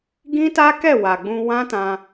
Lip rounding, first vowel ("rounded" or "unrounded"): unrounded